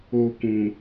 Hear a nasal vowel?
yes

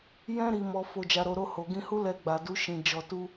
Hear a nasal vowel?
yes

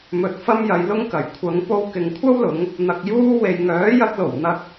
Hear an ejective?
no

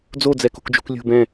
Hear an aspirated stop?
no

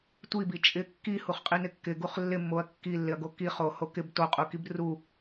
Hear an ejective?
yes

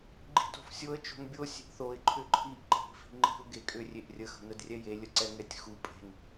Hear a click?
yes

